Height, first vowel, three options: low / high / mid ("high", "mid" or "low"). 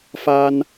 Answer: low